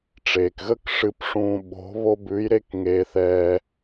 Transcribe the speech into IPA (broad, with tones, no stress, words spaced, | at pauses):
ʈ͡ʂeː˩kɣə˥kʂɨ˧pʂũː˧ ɓo̤˧˥βo˥ bʉ˧˥jɾe˥k ŋeː˧θɛː˧